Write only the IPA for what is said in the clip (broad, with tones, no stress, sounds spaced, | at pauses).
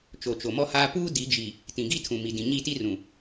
t͡ʃ o˨ t͡ʃ o˨ m ɔ˦ h aː˦ p uː˦ d i˨˦ d͡ʒ i˨ | t ĩ˨ ɡ i˦ tʰ ũ˨ m i˨ d ĩ˨ ɲ i˦˨ t i˦ r ũ˨